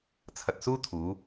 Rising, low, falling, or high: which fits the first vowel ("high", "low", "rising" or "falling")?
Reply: low